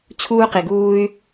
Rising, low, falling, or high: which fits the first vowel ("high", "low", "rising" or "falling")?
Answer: high